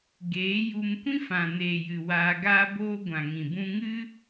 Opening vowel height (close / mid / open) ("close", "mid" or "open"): mid